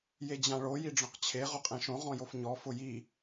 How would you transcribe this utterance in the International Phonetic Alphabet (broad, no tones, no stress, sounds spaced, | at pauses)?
j e d͡ʑ ã ɭ o j i ɖ͡ʐ ɔ̃ q t͡ɕʰ e ʁ ʊ qʼ ẽ ʃ õ ʁ ɔ̃ j o f ɲ ɔ f ʊ j i